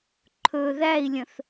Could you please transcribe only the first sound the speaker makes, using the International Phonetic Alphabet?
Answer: ǃʰ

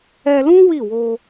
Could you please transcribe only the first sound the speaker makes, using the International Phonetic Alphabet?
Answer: ɛ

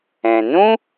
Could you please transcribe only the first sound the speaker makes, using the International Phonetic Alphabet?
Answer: ɛ̃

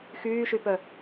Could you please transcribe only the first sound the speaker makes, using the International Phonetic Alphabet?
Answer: x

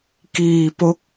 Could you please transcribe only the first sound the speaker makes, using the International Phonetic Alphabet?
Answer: k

